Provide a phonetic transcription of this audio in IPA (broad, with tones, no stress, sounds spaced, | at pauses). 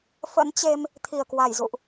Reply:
f ə̰˧˥ n t͡ɕ e˧ m | t̪ʰ i˧˩ ə̯ k w a˧˩ j z ṵ˧˨ ʔ